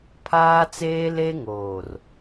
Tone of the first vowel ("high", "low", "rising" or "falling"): high